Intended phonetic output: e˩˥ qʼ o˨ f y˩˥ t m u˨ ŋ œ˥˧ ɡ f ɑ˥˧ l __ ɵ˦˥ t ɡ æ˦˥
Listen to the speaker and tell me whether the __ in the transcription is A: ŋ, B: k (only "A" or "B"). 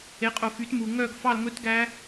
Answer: A